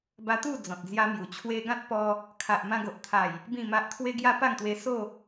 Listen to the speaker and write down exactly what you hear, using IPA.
ba˧t̪u˥˧ d͡zɔ̃˨t̚d͡zja˦mju˨˩ t͡ɕʰwe˧ɡã˦t̚pɔ˧ | kʰa˨ʔmã˧ɡo˨ʔt̪ʰa˨˩j | bĩ˥˧ma˦ʔ t̪ʰwe˧ɡja˧ pa˥˧ŋt̪we˧so˥˧

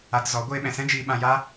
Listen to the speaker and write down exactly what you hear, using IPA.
a˧tzɔ˨˦ ɡʷeː˧ɓɛ̃˨sɛ̃˦d͡ʒiː˧ ɓã˧ja˦

